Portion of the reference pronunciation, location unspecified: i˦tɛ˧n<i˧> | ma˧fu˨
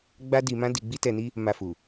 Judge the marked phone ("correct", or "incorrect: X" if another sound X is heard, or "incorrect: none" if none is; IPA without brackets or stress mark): incorrect: i˦